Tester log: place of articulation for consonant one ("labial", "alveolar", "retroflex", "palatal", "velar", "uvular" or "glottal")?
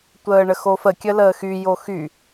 alveolar